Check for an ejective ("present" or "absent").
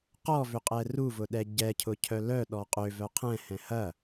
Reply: present